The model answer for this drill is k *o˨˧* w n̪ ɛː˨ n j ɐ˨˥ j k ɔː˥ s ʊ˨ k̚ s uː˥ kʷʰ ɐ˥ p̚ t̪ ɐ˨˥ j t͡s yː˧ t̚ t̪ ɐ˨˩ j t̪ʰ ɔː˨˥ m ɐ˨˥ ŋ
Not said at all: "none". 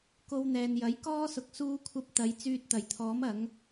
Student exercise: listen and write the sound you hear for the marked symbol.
o˧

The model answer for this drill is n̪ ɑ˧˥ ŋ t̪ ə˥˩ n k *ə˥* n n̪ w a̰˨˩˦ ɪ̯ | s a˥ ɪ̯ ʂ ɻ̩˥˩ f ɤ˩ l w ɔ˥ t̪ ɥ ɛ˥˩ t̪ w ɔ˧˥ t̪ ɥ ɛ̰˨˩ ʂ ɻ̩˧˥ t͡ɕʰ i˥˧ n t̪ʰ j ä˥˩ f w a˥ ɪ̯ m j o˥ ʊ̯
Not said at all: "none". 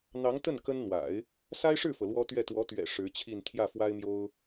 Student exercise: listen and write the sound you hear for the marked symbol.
ə˥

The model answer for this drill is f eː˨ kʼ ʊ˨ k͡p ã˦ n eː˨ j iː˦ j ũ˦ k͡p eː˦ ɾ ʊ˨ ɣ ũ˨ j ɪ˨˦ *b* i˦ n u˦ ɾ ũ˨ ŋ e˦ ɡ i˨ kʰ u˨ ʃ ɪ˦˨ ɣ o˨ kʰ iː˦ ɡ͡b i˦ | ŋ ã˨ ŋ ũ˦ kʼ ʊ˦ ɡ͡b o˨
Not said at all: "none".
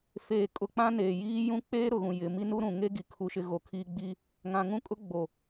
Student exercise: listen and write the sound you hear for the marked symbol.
m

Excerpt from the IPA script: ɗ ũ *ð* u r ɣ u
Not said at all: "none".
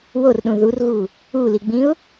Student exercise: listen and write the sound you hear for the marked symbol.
ð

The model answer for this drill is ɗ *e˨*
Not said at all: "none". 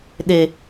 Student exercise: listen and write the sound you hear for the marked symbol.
e˨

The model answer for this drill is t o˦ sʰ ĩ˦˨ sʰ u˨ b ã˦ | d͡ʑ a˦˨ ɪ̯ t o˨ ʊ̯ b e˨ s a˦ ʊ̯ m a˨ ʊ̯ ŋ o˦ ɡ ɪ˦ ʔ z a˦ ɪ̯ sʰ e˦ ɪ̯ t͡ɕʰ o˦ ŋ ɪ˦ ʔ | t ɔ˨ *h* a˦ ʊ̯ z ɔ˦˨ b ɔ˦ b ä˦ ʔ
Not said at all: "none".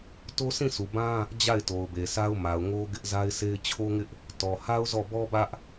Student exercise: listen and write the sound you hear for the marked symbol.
h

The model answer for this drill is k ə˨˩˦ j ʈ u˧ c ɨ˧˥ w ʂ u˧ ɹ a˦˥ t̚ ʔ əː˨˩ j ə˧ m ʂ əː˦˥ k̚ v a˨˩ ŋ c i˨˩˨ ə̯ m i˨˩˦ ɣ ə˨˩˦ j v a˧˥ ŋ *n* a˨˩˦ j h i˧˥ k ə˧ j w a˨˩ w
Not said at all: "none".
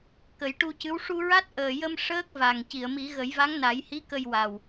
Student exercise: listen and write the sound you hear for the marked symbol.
n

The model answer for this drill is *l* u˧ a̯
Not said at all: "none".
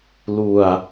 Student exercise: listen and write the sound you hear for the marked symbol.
l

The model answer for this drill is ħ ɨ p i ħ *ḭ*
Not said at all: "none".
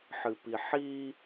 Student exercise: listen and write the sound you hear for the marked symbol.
i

